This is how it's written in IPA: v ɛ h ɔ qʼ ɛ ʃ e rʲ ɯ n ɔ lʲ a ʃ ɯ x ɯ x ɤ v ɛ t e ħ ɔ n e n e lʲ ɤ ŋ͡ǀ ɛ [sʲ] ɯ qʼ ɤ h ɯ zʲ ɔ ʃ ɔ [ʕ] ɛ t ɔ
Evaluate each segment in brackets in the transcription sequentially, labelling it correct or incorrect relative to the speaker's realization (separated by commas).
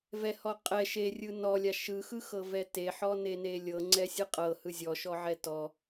correct, correct